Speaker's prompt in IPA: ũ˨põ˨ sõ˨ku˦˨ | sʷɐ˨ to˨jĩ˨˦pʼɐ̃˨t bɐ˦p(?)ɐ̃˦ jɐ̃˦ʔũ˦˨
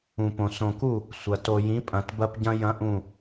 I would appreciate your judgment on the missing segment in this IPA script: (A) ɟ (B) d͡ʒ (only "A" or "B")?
A